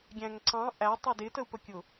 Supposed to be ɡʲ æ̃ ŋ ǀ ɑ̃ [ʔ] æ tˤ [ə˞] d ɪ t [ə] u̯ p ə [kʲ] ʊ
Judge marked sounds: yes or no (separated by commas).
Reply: yes, yes, yes, yes